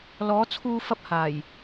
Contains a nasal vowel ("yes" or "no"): no